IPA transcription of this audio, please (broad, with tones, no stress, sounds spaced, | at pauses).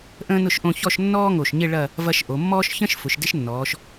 ʔ ə̃ː˥ n ʊ˥˧ ʃ ʔ õ˥˧ ç ɔ˥˧ ʃ nː ɔː˥ ŋ o˧˩ ʃ ɲ ɪ˥˧ ɭ ɐ˥˧ | v ɐ˧ ʃ ʔ o˩˧ mː ɔː˥ ʃ ç ə̃˥ ʃ f ʊ˩˧ ʃ d ɪ˥ ʃ nː ɔː˩˧ ʃ